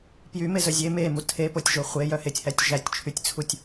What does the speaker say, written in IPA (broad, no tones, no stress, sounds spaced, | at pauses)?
p j y m e z œ zʲ e m e m u tʰ e p o tʲ ʒ o χʷ e j œ h e tʲ h æ tʲ ʒ æ tʲ t͡ʃʰ y tʲ t͡sʰ u tʲ